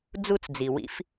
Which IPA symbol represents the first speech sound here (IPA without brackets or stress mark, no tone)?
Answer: d͡z